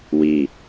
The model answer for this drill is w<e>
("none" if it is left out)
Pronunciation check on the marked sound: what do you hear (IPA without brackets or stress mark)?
i